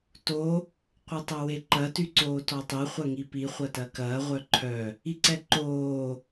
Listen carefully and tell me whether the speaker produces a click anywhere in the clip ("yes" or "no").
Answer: yes